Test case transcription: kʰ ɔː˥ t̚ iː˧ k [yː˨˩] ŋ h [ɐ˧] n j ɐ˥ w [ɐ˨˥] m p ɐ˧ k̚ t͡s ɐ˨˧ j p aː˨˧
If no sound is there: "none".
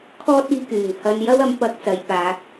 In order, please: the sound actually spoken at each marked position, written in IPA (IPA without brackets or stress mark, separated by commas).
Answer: yː˨˩, ɐ˧, ɐ˨˥